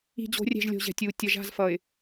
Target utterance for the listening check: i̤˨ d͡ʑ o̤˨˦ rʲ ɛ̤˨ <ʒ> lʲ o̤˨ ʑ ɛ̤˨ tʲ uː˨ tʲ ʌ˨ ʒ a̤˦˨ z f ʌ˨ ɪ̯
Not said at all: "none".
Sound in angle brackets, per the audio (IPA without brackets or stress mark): ʒ